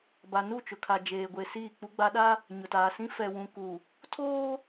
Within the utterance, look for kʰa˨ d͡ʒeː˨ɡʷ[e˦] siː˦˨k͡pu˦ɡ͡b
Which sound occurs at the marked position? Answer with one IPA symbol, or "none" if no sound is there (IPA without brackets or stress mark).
e˨